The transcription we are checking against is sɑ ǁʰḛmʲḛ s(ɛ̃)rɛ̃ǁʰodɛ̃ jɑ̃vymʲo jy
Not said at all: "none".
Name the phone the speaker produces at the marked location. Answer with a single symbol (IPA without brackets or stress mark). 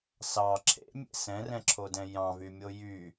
ɛ̃